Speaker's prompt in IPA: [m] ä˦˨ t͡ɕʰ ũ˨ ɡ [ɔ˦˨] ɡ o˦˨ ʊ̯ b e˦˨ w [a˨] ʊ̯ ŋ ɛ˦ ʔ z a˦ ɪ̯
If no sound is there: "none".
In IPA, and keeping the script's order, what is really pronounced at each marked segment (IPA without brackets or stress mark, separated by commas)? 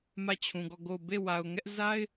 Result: m, ɔ˦˨, a˨